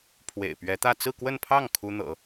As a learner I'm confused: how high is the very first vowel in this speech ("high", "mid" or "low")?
mid